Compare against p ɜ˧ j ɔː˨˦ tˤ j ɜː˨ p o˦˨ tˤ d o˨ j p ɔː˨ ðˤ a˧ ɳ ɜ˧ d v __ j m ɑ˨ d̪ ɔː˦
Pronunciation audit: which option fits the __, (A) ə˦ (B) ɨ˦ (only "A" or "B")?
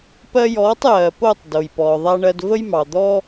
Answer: A